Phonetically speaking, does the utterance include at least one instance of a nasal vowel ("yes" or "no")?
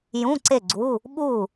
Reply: yes